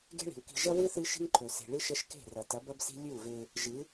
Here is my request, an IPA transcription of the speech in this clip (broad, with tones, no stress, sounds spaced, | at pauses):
ɡ e̤˦ ɭ i̤˨ w k i̤˧ ʒ ɐ˦ w ɨ˦ θ ɨ˦ ʃ i̤˦ ŋ ǃʰ ɵ˨ s e̤˨ ɭ ɨ˦ ʃ ɐ˦ ʃ k e̤˦˨ r ɐ˨ t ɐ˨˦ b ɐ˦ b s i̤˦ lʲ ʉ˦˨ u̯ v e˧ | ʒ ɨ˨˦